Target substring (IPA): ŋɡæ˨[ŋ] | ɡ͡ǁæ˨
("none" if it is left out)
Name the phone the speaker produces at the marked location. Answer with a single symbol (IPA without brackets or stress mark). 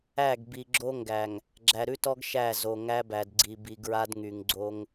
ŋ